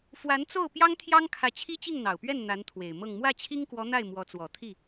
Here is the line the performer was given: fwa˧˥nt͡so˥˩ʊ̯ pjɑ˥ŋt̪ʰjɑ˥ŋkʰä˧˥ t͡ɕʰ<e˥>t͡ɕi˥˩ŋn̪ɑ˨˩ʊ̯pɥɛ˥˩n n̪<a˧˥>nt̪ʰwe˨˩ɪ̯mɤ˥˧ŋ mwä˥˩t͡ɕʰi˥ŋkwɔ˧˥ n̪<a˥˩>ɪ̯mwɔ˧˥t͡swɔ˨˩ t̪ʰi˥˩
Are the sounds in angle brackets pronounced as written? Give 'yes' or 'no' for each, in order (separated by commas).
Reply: no, yes, yes